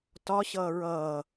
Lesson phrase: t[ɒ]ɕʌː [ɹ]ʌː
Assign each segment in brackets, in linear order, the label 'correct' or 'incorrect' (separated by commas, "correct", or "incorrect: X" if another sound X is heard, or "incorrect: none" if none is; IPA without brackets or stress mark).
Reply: correct, correct